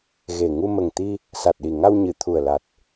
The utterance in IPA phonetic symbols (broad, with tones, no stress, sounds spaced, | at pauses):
ɣ e˨˩ ŋ u˧ m ə˨˩ ŋ t̪ i˧ | s a˨˩ t̚ ɗ i˨˩ ŋ a˧ w ɲ ɨ˨˩˨ t̪ʰ u˨˩ ə̯ l a˨˩ t̚